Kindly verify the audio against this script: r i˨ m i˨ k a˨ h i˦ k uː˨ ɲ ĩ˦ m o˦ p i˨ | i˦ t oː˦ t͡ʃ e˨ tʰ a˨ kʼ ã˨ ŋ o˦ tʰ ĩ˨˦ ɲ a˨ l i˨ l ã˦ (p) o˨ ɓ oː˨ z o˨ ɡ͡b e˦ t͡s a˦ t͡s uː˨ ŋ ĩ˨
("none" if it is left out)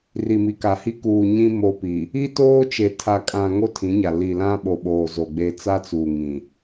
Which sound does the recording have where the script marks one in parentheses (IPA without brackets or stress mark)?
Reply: ɓ